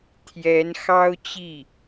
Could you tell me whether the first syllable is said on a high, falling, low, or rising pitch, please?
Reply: rising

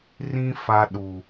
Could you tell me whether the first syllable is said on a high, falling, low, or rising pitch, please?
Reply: high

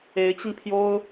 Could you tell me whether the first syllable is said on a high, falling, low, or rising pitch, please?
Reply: rising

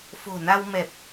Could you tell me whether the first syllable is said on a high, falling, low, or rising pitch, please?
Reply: low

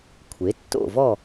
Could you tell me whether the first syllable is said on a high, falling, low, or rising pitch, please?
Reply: rising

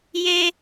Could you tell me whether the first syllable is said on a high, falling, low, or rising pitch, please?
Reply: low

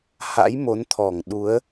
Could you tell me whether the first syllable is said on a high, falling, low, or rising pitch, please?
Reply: rising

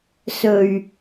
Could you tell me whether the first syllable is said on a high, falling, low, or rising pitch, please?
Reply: low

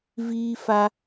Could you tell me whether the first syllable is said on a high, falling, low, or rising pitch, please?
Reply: high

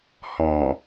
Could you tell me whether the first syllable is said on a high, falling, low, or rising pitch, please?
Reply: low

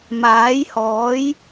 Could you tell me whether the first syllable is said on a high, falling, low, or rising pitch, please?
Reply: rising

